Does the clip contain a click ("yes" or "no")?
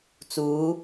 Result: no